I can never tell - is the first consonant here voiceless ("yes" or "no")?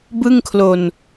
no